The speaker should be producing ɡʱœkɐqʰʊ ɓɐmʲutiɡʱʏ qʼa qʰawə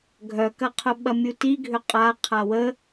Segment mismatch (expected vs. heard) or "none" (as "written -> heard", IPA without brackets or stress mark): none